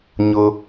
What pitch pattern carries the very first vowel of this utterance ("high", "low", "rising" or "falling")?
low